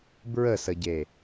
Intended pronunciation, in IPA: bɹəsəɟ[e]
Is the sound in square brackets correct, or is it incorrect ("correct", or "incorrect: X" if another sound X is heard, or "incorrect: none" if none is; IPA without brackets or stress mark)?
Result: correct